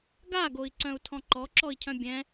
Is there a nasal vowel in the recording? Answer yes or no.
yes